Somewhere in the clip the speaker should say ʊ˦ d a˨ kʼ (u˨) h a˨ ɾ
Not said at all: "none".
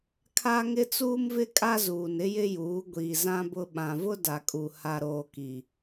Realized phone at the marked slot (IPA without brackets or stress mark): u˨